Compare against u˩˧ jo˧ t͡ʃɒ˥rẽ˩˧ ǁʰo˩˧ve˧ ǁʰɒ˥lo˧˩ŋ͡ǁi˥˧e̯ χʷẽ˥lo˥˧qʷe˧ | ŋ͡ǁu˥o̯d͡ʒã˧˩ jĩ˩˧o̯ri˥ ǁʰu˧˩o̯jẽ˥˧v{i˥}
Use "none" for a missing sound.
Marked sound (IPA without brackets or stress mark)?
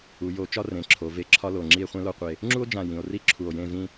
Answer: ĩ˥